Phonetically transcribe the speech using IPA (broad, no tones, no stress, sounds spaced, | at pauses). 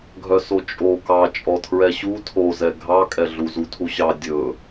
ɡʱ œ s o t͡ʃʼ o k ɑ t͡ʃʼ ɔ tʰ ɹ ɛ ɕ u tʰ o z ɛ ɡʱ ɑ kʼ ɛ ɮ u z u tʰ u ɕ ɑ dʲ ɵ